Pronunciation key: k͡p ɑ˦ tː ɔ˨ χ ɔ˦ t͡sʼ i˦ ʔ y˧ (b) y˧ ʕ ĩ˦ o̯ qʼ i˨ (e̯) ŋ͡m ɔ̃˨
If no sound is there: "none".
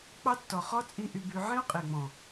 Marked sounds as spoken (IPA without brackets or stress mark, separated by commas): b, e̯